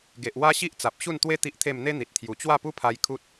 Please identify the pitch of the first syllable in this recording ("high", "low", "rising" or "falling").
low